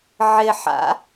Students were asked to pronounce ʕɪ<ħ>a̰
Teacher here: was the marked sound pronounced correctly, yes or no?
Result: yes